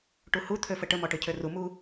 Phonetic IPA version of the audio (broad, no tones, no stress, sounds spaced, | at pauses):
ʈ u h u t̪ʰ ø f ə ʈ ə m ɔ ʈ ø cʰ ø r u m u